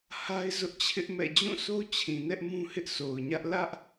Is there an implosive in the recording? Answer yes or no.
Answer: no